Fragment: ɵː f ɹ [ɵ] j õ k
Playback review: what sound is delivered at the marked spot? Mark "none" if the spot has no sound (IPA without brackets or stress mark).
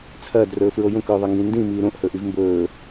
o